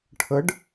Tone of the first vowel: rising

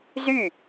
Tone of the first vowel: falling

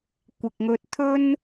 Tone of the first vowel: low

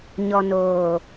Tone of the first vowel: low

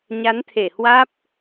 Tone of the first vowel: rising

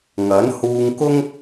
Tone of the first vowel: rising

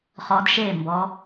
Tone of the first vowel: rising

